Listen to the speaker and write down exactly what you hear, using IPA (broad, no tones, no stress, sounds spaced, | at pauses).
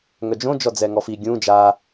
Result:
ŋ œ d͡ʒ õ d͡ʒ ɔ d͡z ɛ ŋ ɔ f i ɡʲ ũ d͡ʒ a